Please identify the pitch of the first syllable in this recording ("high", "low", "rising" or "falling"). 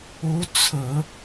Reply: rising